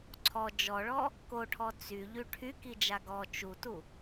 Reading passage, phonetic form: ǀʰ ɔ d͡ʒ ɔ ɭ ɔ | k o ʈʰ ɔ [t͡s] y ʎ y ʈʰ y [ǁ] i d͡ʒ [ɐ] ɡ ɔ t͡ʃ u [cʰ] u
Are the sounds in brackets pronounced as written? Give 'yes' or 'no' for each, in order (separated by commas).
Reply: yes, no, no, no